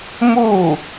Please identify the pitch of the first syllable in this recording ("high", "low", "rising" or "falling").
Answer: falling